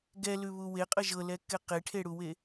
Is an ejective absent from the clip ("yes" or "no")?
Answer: no